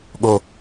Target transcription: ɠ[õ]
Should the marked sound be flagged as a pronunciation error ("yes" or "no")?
yes